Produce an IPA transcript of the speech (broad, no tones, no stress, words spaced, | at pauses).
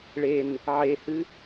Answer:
ɭen | ʕehɨ